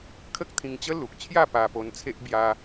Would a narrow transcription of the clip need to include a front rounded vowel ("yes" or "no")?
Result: no